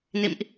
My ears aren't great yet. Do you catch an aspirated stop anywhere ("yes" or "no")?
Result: no